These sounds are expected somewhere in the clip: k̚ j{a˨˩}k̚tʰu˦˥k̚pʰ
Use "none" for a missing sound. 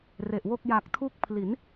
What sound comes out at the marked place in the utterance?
a˨˩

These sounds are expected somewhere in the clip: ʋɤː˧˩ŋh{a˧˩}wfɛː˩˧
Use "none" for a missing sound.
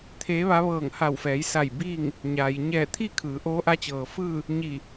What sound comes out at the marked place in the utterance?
a˧˩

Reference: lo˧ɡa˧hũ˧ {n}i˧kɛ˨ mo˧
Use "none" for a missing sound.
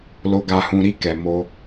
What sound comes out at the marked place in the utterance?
ɾ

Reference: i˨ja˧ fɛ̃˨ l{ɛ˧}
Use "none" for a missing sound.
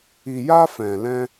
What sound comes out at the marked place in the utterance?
ɛ̃˧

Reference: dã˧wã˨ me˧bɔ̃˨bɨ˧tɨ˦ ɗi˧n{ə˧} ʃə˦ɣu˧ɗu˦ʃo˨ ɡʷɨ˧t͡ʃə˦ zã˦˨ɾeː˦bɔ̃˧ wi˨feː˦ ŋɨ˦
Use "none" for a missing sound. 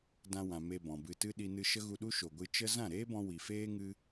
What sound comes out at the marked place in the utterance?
ɨ˧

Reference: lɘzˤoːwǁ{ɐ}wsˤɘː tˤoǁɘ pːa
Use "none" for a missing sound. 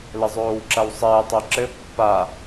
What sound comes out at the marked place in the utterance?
ɐ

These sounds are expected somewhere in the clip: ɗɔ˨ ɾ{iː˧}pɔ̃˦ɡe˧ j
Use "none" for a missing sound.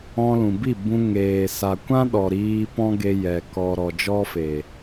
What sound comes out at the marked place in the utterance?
iː˧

